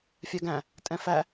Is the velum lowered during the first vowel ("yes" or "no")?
no